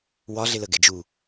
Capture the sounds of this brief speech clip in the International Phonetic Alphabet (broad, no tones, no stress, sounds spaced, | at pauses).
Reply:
w ɒ ɮ ɪ l ə ɡ ɪ d͡ʒ u